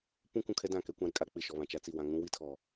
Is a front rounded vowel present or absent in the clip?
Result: absent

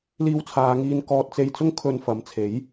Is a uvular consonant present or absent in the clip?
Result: absent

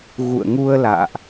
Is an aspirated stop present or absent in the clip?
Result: absent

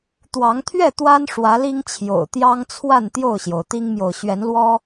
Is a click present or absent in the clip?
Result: absent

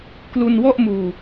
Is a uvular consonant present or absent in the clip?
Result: absent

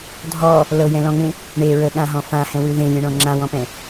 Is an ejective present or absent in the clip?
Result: absent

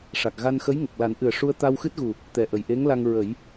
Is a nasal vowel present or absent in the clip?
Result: absent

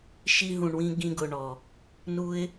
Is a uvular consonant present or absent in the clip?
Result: absent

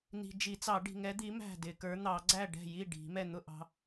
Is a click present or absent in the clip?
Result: present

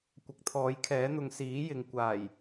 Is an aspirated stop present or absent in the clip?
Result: present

